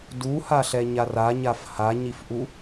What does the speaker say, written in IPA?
duhaɬɛ ɲaraɲaf haɲifʔu

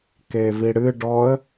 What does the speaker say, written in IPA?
keviɽɨ ɖɔə̯

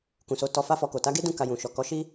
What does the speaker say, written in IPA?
kũ˨so˨˦ tɔ˧fa˦fɔ˧ko˨ ta˨˦ɡe˦dũ˦˨ ka˧jũ˨ ʃɔ˨kɔ˨˦ʃi˦

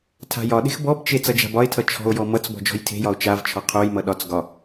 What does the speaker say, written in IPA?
tʰa̤jɒɗe̤x bɔbt͡ʃe t͡sʌd͡ʒa̤bɒe̯tʰʌ t͡ʃʰɔ̤o̯jɔ mʌt͡sbɔ̤ d͡ʒɔ̤jtʰe̤jɒo̯ t͡ʃavt͡ʃʰɒ qʰojmʌ ɗɒt͡s ɡɒ

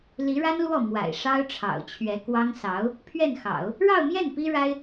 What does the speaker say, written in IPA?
li˧˥ɻa˥nlwɔ˥˩ mwa̰˨˩ɪ̯ʂɑ˥ʊ̯ʈ͡ʂʰɑ̰˨˩ʊ̯t͡ɕʰɥɛ˧˥ kwɑ˥ŋ sɑ˧˥ʊ̯ | pʰɥɛ˥˩nxɑ̰˨˩˦ʊ̯ | ɻɑ˥˧ʊ̯mjɛ˥˩n pi˥ɻa˥ɪ̯

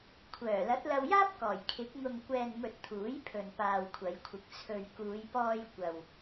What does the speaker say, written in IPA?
kʷʰœː˨˩ lɐ˨˥t̚lɐ˧wjaː˥p̚kɔː˨˩j kʰɪ˨˥k̚ ŋʊ˨ŋkʷɛː˨nmɵ˨t̚ t̪ʰuː˨˥jpʰɵ˨n paː˨wkʷʰɐ˨˧jkʷʰɪ˨k̚ t͡sʰɵ˨ɥkuː˨˧jpɔː˧j kʷɐ˨w

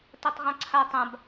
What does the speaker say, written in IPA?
tatˤʁãǀʰa tˤãb

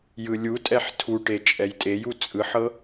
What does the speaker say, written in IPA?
jɯlʲutʼɛħ tʰuʈe t͡ʃʼɛjtʼeju t͡sʼɯħɤ

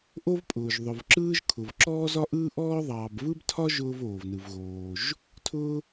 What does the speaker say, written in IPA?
ʔo˥vpʼʊː˩ʒ ðˤʊ˩vǁɯː˥ʒkʰʊ˩v ǁɔː˥zɒ˥ʔɯː˥ʔɔː˥ ðˤɑː˩bvɯ˥btʰɒ˥ ʒʊː˥voː˩vnɯ˩vɣoː˩ʒ | tʰʊː˥

